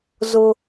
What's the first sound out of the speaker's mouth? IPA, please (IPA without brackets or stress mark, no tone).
z